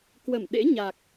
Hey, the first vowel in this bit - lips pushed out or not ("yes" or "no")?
no